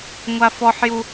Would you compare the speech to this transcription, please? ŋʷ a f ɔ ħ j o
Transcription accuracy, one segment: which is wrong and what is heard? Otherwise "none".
o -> u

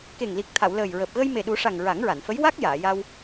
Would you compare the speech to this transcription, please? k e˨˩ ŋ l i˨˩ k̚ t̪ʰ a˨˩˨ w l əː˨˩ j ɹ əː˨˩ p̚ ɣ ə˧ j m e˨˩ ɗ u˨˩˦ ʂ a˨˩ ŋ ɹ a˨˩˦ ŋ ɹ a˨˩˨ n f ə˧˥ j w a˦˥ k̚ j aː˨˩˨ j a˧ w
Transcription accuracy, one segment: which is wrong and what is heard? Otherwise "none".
none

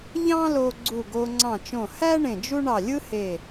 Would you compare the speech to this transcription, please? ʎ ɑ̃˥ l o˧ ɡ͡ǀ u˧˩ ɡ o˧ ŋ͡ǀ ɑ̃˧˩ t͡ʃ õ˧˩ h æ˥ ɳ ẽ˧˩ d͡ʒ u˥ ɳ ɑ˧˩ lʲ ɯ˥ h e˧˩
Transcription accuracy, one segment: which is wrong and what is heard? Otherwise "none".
none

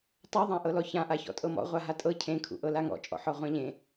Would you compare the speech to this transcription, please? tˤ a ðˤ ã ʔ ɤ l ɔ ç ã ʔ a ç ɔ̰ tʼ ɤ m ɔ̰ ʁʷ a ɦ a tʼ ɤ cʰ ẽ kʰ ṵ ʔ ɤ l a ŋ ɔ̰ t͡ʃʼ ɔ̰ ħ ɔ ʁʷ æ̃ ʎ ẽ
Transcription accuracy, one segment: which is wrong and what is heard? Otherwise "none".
æ̃ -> ã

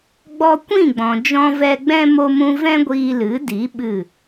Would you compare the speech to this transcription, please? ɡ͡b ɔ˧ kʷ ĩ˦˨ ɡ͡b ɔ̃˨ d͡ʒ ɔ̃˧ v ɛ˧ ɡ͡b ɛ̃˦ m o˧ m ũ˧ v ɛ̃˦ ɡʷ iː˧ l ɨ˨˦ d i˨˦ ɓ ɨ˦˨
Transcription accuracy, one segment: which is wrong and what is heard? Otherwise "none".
none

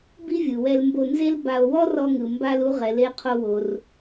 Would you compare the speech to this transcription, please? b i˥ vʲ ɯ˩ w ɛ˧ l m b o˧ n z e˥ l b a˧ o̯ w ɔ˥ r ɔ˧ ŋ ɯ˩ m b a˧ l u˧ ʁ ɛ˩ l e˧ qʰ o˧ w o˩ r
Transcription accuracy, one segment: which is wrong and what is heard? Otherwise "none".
none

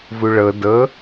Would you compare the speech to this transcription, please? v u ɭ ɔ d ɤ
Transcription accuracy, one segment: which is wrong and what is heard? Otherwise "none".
ɔ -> ɤ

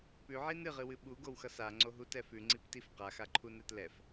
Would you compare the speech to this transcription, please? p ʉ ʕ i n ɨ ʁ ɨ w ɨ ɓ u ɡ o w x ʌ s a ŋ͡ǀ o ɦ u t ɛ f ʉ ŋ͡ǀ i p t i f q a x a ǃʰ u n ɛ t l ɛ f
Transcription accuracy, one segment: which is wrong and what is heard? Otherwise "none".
none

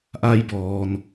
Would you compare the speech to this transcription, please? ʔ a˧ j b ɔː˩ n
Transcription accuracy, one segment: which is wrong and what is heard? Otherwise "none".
none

